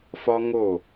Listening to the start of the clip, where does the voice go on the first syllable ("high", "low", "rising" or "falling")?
high